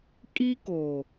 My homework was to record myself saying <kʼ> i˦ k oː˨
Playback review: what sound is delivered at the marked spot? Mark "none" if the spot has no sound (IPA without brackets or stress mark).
kʼ